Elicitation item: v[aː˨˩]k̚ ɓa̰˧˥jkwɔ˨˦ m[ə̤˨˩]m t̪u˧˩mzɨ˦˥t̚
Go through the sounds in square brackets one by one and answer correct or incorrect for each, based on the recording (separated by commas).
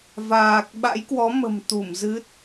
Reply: correct, correct